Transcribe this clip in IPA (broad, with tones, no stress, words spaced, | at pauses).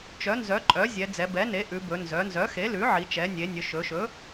t͡ʃœ˩˥nzœ˩˥ǃʼœ˩˥zʲɛ˩˧ d͡zɛ˩˧bɛ˩˥ne˩˥ ʔʉ˩˧bɵ˩˧ nzœ˩˧nzœ˩˥xe˩˥lʉ˩˥ ʕi˩˧t͡ʃɛ˩˧nʲe˩˧nʲɵ˩˧ ʃɵ˩˧ʃɵ˩˥